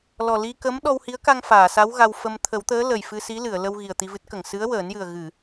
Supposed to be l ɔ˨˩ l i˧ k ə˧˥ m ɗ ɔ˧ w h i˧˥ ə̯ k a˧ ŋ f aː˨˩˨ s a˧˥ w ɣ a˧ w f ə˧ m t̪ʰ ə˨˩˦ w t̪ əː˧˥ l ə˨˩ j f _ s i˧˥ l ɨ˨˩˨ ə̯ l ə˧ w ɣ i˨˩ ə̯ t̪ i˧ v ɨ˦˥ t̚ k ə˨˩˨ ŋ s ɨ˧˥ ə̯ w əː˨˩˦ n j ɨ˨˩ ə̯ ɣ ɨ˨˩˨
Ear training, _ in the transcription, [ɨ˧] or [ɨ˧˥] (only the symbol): ɨ˧